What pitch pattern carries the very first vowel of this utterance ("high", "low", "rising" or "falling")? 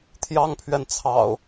high